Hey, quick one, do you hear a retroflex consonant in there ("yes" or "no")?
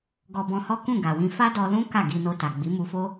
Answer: no